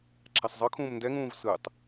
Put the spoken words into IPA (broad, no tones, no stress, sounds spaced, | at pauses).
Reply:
ǁʰ a sˤ zˤ ɯ kʰ ũː m n d ɛ ŋ ũː v s ɯ tˤ